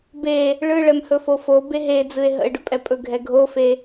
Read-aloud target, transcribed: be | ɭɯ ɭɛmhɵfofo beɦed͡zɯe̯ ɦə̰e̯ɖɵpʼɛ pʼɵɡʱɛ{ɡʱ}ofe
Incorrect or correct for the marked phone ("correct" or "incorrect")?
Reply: correct